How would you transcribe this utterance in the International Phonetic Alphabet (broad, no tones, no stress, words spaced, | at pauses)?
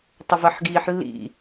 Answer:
tˤəvɜħɡiːħlːḭ